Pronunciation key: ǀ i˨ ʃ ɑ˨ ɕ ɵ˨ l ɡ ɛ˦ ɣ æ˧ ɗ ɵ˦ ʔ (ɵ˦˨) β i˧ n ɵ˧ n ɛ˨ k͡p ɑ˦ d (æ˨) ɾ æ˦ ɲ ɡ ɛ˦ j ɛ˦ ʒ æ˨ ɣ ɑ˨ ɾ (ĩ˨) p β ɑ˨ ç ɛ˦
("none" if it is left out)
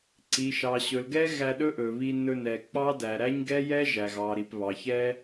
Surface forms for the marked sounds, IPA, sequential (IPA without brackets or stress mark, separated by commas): ɵ˨, æ˨, i˨